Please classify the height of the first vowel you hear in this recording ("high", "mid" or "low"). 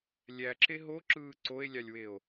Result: low